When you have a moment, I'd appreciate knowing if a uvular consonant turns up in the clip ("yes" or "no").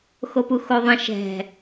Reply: no